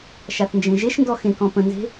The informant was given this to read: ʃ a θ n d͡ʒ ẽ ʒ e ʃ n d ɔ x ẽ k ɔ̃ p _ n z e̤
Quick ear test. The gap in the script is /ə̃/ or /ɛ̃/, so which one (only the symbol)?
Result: ə̃